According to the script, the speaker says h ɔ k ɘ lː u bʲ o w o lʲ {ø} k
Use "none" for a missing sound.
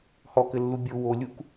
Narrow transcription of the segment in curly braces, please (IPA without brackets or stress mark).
u